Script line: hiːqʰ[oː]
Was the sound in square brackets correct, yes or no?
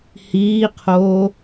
yes